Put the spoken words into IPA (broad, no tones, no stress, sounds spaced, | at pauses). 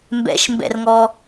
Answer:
m b ɛ̰ ʃ m b ɛ̰ r ŋ ɔ